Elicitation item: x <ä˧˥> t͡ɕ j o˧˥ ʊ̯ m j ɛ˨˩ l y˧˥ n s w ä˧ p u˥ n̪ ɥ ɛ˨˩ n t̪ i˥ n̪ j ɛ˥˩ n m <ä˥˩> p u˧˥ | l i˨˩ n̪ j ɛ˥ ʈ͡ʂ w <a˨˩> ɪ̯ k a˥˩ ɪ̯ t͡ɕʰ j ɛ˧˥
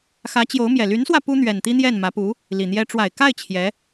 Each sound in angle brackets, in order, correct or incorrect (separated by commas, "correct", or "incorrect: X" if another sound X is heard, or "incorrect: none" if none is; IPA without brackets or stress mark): correct, incorrect: ä˧˥, correct